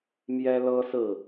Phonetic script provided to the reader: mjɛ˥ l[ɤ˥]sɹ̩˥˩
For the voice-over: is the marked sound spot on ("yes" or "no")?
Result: yes